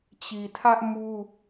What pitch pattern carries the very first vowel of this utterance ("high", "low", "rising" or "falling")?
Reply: low